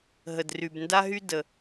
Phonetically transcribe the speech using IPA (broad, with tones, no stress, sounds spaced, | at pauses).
ɦ ə˩ d r y˩ b n d a˥ ɦ y˥ d ə˩